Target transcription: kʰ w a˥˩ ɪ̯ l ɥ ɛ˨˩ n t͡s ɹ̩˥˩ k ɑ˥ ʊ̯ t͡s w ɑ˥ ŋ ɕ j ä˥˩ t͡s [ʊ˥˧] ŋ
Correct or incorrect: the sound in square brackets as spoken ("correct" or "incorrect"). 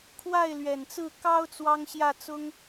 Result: incorrect